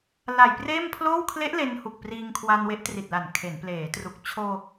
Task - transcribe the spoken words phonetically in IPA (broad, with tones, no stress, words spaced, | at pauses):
la˨˩jpreː˥˩mpʰloː˥˩w kʰle˦˥ʔ le˧nhu˨˩k̚ priː˧ŋkʰwa˧n we˦˥ʔtri˨˩t̚la˨˩n kʰe˩˦npleː˩˦tru˨˩k̚ t͡ɕʰoː˧